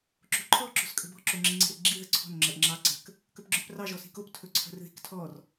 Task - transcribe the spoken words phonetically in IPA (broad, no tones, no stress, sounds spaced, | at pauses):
ǁ o̤ ǃʰ ɔ ǁ o̤ s kʼ ə̤ b ɔ̤ ǁ o ŋ͡ǁ i ŋ͡ǀ ɛ̤ r ɡ͡ǁ i ð ə ǀʰ o̤ n ŋ͡ǁ ə ʔ ŋ͡ǁ ɑ ǀ ə̤ k | k ɵ p ɡ͡ǁ ɵ ʔ p r ɑ ʒ ɔ s i̤ k o p tʰ ɵ ǀʰ ə̤ r ð i̤ k tʰ ɔ r